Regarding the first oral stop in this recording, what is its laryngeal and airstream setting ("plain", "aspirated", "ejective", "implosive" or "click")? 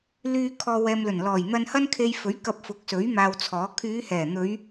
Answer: aspirated